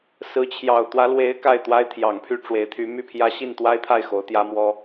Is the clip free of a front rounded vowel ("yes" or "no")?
no